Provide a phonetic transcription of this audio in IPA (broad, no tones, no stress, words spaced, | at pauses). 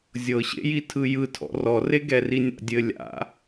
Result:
zʲɤɕḛji tʰɯjɯ tʰɔ̰rɔre ɡɛrinʲa̰dʲɘ lʲa̰